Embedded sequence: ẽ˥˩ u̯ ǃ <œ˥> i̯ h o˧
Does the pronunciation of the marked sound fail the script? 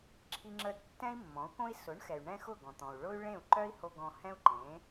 no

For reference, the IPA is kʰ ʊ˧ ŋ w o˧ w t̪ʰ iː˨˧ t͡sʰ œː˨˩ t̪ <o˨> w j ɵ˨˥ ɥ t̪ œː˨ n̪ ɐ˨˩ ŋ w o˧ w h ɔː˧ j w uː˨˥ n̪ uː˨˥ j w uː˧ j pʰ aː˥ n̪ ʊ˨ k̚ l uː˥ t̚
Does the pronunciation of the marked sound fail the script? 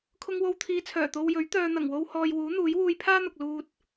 yes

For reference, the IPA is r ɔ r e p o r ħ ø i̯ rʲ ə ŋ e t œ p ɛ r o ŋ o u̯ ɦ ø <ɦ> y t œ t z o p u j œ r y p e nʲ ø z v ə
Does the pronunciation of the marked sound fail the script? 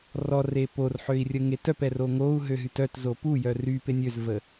no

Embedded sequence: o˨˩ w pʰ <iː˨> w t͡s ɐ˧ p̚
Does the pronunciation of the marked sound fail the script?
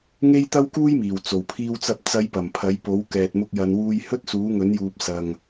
yes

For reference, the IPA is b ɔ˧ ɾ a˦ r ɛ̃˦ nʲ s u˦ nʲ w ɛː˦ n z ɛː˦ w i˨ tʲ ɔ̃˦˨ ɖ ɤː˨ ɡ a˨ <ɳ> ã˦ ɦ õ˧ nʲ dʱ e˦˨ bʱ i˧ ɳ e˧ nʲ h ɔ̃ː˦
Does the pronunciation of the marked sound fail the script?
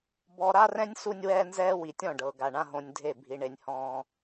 no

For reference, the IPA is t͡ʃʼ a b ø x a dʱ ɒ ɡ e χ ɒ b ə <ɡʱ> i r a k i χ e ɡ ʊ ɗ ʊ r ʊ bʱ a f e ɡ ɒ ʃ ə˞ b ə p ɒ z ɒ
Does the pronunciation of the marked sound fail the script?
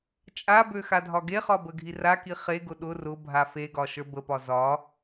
no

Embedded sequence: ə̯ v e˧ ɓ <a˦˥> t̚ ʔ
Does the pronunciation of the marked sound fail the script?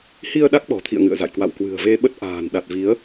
yes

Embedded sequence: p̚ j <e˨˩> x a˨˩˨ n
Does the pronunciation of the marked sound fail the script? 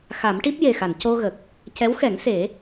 no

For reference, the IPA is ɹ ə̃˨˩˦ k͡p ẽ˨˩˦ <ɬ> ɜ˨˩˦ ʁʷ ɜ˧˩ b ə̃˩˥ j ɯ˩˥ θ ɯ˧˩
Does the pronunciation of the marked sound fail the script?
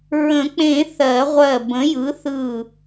yes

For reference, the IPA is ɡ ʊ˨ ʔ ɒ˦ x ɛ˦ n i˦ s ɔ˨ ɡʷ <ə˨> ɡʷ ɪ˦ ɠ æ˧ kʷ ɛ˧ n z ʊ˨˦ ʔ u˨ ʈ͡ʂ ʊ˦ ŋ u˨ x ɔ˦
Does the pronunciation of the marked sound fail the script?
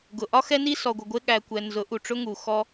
no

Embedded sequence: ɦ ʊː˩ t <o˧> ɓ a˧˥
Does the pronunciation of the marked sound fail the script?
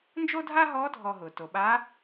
yes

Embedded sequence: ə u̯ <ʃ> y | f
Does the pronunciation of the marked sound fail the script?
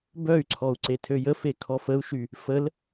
no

